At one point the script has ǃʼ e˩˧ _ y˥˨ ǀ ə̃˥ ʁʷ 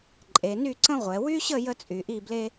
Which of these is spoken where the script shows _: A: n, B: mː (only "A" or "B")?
A